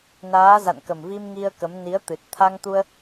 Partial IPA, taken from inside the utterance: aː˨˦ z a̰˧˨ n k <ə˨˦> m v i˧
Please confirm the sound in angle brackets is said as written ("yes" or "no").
no